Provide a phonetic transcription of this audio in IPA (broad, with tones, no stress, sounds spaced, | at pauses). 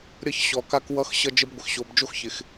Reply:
ɾʲ ʌ˦ ç ɕ ɔ˨ k a˦ k w ʌ˦ x ɕ ʌ˦ d͡ʒ ə˦ b ɡʷ ɪ˨ x ɕ o˨ b d͡ʒ o˦ x ç ɪ˨ x